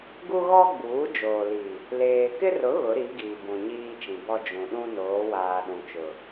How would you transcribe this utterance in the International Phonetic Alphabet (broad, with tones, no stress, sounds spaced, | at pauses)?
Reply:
ɡ u˦ ɣ ɔ˦ ɡ͡b uː˨˦ d͡ʒ oː˨ l i˨ | l eː˨ k ɪ˦ r ʊ˨˦ ɣ ʊ˨˦ ɾ i˨˦ ɡ iː˨ b ũ˨ ɲ iː˦ t͡ʃ ĩ˨ b ɔ˦ d͡ʒ ũ˨ ɗ ũ˦ n oː˨˦ w aː˨ ɗ ũ˨ t͡ʃ ʊ˨